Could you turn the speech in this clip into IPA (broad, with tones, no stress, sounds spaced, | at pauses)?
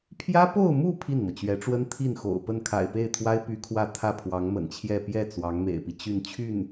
pʰ j ä˥ p o˥˧ ʊ̯ m u˥˧ pʰ i˥˩ n m ɤ˩ t͡ɕ ɥ ɛ˧˥ ʈ͡ʂ w ə˥ n t̪ʰ i˥˩ n x o̰˨˩ ʊ̯ p ə˥˩ n kʰ a̰˨˩ ɪ̯ p e˥˩ ɪ̯ t̪ʰ w a˥ ɪ̯ p y˧˥ kʰ w ä˥˧ t̪ʰ ä˥˩ pʰ w ɑ˧˥ ŋ m ə̰˨˩ n t͡ɕʰ j ɛ˥˧ p j ɛ˥˩ t͡s w ɑ˧˥ ŋ m ḛ˨˩ ɪ̯ p i˦ t͡ɕ y˥˧ n t͡ɕʰ y˥˩ n